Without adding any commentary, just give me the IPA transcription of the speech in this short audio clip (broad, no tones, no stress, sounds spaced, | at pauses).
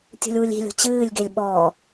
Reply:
tʲ ṳ lʲ w u lʲ i̤ lʲ o̤ t͡ɕ ɨː lʲ ɡ e lʲ ɓ ɔ